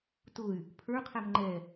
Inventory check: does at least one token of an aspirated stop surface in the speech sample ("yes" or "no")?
yes